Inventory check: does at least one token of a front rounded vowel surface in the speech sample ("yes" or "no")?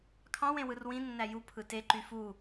yes